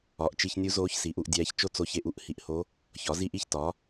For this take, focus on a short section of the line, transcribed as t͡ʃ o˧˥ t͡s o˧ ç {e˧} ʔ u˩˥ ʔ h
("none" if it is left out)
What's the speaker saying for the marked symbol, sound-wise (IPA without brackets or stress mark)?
e˧